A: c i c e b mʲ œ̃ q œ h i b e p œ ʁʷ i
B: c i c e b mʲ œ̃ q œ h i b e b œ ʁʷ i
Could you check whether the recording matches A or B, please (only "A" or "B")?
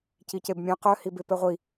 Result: A